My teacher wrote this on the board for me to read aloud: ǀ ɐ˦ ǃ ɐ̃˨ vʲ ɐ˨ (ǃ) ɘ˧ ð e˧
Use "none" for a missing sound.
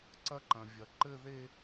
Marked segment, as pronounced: ǃ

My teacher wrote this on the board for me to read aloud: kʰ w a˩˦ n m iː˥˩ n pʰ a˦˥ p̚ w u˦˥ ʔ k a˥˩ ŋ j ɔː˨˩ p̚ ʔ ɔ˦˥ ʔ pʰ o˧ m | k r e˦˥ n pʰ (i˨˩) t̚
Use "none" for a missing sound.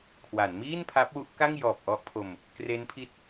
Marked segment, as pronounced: i˦˥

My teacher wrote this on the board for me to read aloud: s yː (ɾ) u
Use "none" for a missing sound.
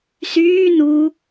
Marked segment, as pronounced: n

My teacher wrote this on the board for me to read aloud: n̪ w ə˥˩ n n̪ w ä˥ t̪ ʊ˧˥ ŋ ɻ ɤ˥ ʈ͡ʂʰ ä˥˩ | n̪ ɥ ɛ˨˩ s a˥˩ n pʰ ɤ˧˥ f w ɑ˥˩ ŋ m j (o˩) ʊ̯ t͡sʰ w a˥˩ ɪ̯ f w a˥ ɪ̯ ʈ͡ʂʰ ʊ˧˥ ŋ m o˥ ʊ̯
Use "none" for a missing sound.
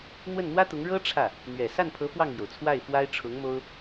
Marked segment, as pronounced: o˩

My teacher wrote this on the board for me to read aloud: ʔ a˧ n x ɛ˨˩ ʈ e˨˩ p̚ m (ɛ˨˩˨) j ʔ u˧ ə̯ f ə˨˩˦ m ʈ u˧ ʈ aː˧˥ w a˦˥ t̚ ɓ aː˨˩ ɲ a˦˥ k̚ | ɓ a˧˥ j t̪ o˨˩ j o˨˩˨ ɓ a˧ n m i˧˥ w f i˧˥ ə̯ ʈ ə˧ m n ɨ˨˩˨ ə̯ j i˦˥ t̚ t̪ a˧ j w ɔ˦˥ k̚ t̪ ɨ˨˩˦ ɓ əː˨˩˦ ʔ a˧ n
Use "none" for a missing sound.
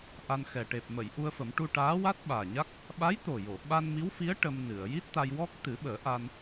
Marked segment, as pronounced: ə˨˩˨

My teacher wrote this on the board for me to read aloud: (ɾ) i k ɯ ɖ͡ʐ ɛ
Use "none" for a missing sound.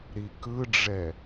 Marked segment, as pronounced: ɾ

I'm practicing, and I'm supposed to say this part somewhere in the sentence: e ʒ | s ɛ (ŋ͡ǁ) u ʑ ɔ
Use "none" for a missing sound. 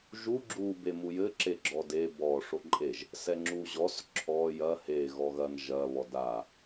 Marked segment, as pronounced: ŋ͡ǁ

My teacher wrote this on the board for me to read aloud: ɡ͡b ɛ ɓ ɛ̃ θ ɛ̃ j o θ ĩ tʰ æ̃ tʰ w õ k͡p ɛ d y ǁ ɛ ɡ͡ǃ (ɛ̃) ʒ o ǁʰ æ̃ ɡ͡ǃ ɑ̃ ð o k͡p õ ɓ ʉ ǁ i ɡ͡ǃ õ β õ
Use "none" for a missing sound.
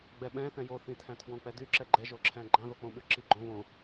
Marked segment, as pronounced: ɛ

